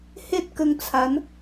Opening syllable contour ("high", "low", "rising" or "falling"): high